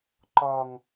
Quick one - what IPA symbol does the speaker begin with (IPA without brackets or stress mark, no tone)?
ǃ